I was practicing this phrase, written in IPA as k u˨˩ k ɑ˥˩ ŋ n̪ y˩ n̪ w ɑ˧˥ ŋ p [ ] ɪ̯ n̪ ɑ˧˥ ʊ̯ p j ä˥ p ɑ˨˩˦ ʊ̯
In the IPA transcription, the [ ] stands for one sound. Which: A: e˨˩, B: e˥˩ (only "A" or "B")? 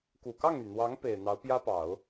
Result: A